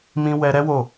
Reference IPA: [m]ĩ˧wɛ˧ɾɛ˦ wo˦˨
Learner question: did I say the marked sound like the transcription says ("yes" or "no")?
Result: yes